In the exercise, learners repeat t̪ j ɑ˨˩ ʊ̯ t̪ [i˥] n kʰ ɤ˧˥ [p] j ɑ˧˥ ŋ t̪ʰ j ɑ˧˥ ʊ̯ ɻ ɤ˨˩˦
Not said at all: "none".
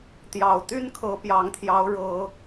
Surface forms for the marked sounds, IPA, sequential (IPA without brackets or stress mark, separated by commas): y˥, p